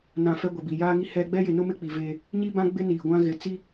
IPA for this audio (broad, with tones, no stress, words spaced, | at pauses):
nã˨ fɛ˦ɡʷɛ˨bi˨ jaː˦ŋi˦ hɛ˦ ɡ͡bɛ˦jɪ˨nʊ˦mɪ˦ k͡pi˨ve˦ | ɲi˦bã˦ ɡ͡bɪ˦ niː˨ ɡʷã˦ɣɪ˨ t͡si˦